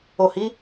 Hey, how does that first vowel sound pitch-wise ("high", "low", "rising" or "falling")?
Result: low